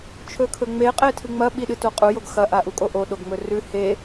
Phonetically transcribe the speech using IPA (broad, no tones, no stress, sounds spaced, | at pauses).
t͡ʃʰ ɵ kʰ ɵ ŋ͡m e qʼ e tʰ ɨ ŋ͡m ɐ ɓ i ɗ ɨ t o qʼ u j o ɡ x ɐ ʔ a ʔ u kʼ o ʔ o ɗ o ɡ ŋ͡m ɵ r ʉ h e